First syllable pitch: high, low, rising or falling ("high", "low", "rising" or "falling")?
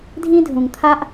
high